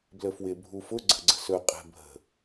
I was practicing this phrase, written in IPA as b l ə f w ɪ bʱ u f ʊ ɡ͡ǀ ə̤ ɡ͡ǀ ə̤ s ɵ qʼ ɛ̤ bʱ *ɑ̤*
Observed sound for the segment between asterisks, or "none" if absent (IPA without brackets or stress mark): ə̤